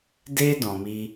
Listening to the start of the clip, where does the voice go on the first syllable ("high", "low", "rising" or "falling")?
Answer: high